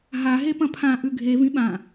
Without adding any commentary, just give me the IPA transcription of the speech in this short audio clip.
ɦ a ɦ e p ɐ̃ pʰ ã ʔ ʉ ɡʱ e v ĩ ɓ ã

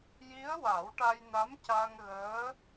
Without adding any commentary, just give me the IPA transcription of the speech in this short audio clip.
j i˧˥ ə̯ w a˨˩˦ w ʈ a˧ j n a˧˥ m c a˧ ŋ ɣ əː˧˥

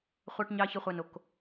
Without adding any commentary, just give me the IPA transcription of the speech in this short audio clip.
χʷ ɑ˦ ʈ ɲ ɑ˦ ç ə˦ χʷ a˦ n o˦ k

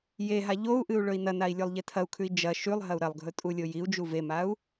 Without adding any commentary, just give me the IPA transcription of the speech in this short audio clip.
j e ɦ a ʎ o u̯ ʔ ɨ u̯ ɭ ɵ i̯ n ɐ n a i̯ lʲ o lˠ ʎ e tʰ ɐ u̯ kʰ ʉ i̯ d͡ʒ ɐ ʃ ʉ lˠ ɦ ɐ u̯ ɾ ɐ lˠ ɡʱ ɵ tʼ u lʲ o j i u̯ d͡ʒ u v e m a u̯

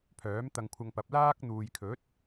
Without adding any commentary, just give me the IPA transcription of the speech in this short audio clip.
pʰ œː˨˥ m t̪ ɐ˧ ŋ kʷʰ ɐ˧ ŋ p ɐ˨˥ p̚ l aː˥ k̚ n̪ uː˨ j kʰ ɵ˨˥ t̚

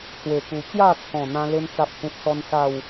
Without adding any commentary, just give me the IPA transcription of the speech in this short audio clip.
t͡s w e˨˩ k u˨˩ t͡ɕ j a˥˧ t͡sʰ ɔ̃˨˩ n̪ ã˦ l e˦ n t͡s a˦ p̚ h ẽ˦ p̚ s ɔ˦ n s a˥˧ w

